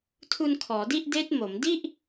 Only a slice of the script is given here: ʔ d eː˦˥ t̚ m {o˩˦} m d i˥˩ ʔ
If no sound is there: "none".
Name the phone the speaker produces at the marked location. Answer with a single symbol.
o˩˦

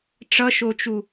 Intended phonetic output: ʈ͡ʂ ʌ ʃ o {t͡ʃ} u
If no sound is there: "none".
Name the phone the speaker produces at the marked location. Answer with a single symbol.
t͡ʃ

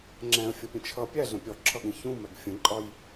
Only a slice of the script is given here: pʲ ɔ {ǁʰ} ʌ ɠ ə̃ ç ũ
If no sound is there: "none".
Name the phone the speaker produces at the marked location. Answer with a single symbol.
ǁʰ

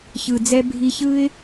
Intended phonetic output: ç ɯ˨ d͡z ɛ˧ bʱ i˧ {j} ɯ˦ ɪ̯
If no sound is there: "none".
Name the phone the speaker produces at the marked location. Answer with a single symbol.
ç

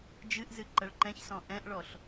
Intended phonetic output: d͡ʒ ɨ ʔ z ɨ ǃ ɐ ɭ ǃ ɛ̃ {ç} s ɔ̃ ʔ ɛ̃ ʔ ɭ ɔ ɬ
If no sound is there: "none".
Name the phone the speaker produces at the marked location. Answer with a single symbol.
ç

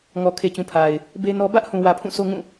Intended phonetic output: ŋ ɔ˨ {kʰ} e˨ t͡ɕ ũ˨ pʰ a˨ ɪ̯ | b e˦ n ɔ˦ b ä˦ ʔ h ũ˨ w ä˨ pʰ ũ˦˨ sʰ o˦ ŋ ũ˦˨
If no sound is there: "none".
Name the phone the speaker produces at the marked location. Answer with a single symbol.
kʰ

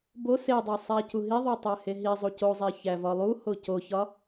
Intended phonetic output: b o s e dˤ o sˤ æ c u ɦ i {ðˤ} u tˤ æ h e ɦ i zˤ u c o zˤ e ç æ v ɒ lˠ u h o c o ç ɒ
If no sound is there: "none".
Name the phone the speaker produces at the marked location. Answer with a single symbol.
ðˤ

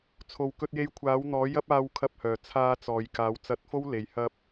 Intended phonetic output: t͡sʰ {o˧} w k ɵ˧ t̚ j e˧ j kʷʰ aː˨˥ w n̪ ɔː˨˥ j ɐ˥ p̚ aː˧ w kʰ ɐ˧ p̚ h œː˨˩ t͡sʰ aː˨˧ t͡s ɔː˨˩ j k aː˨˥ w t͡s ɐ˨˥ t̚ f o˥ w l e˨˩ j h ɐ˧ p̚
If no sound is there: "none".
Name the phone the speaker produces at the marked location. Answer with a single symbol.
o˨˩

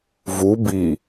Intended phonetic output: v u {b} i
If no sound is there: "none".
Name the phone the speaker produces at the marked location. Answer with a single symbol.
b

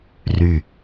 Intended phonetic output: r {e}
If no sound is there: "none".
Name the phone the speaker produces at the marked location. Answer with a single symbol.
y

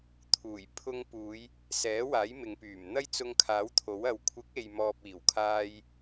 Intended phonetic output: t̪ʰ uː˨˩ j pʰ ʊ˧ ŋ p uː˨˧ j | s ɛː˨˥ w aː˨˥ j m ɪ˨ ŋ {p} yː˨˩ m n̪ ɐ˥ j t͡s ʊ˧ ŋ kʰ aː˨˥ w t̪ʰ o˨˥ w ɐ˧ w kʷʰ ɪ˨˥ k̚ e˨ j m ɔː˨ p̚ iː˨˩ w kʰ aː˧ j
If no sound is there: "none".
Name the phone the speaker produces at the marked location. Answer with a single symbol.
p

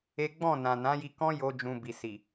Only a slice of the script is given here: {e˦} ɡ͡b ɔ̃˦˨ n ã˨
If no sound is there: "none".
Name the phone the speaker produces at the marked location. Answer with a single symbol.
e˦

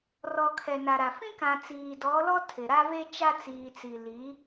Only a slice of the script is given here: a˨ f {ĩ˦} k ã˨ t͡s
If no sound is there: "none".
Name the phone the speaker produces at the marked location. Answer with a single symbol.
ĩ˦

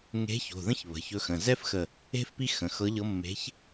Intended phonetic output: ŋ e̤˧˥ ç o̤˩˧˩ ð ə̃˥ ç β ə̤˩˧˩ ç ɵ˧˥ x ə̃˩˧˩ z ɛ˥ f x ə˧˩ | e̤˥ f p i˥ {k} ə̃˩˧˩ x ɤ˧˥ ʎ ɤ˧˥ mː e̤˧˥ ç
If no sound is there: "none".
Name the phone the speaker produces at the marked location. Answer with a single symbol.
x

